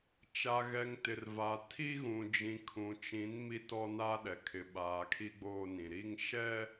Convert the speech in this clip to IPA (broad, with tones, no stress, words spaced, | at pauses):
t͡ʃa˨ɣɛ˨ŋ tɪ˨rva˨ tʰi˦ ɣũ˨d͡ʒĩ˨kʰũ˨ t͡ʃĩ˨˦n mi˦tɔ˦na˦ɗɛ˨ kʰɪ˨ɓaː˨ kʰi˦ɡ͡boː˦nĩ˨ ɾi˦ŋ ʃɛ˦